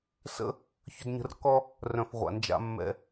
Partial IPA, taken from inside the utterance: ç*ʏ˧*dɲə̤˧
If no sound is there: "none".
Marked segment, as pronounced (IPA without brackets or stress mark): ʏ˧